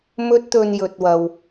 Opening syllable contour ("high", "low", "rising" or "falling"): high